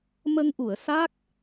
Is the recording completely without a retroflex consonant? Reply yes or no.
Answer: yes